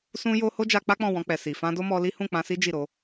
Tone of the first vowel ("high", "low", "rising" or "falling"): high